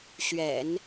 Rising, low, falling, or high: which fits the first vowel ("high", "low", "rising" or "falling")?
low